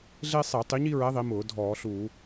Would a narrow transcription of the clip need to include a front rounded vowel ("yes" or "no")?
no